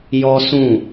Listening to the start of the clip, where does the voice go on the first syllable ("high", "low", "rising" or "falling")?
high